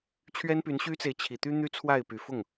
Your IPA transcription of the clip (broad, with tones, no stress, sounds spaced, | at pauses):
t͡ɕʰ ɥ ɛ˦ n p y˨˦ n ɕ y˦ t͡s e˨ ɪ̯ t͡ɕʰ i˨˩ t̪ y˦ n̪ y˦ t͡sʰ w a˥˨ ɪ̯ p y˨˩ f ʊ˥˨ ŋ